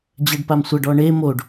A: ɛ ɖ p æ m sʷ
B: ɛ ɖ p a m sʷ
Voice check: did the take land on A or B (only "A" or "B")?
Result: B